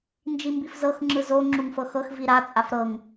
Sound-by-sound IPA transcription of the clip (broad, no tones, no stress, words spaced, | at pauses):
nd͡ʒimbifzɤx ŋ͡ǁɯzo ŋ͡ǁuŋfɤxɤx viɾa t͡sʼafɾɤŋ